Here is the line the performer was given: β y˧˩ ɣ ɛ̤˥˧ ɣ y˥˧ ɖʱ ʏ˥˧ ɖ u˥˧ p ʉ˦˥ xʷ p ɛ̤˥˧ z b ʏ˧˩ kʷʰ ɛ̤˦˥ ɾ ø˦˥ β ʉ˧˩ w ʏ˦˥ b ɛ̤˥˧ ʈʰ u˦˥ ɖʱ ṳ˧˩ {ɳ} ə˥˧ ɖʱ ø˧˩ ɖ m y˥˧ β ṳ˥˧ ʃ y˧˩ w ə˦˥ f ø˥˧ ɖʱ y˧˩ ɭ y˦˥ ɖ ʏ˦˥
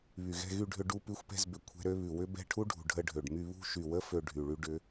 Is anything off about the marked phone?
yes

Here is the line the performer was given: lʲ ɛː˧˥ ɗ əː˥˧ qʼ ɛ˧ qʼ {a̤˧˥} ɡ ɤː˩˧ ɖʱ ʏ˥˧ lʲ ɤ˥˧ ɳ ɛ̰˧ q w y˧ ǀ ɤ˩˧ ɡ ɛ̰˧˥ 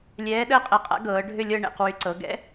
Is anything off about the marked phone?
yes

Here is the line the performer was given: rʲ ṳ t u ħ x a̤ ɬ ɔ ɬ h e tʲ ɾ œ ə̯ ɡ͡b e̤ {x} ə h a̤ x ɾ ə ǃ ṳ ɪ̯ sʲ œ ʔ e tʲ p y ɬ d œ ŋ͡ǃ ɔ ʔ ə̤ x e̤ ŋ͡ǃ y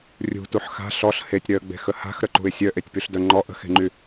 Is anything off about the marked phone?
no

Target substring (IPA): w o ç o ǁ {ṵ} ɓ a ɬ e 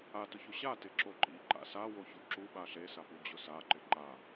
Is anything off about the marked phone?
yes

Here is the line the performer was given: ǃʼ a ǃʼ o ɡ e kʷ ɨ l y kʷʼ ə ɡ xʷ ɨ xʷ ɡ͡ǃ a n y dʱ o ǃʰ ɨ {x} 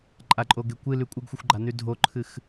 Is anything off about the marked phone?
no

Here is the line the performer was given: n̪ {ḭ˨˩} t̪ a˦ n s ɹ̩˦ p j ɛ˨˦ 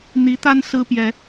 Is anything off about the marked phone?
yes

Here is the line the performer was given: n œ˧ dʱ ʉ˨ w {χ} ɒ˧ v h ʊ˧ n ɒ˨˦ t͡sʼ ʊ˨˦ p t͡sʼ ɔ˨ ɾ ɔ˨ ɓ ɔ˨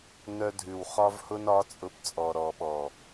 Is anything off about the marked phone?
no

